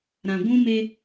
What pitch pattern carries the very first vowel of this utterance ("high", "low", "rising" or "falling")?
low